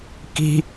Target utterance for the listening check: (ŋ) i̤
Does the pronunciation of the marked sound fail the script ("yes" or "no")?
yes